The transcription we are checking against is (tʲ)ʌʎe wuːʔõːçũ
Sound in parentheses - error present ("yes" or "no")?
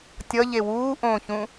no